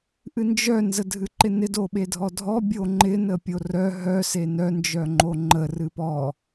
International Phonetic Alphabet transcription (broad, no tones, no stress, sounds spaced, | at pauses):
ʔ ɨ n d͡ʒ œ n z ə dʱ ɨ ǃ ɪ n ɪ d o ɓ e dʱ ɔ dʱ ɔ bʲ o ŋ͡ǃ ɪ n ə pʲ o r œ ɦ œ s e n œ n d͡ʒ œ ŋ͡ǃ o ŋ͡ǃ ə r ɨ p ɔ